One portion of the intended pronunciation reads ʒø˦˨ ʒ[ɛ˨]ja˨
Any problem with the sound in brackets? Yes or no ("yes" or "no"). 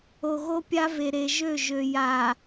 yes